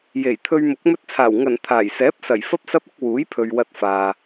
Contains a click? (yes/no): no